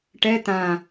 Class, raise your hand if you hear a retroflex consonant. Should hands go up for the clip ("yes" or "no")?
yes